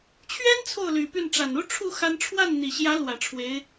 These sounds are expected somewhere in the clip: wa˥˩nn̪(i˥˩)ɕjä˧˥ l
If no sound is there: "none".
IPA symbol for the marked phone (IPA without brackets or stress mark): i˨˩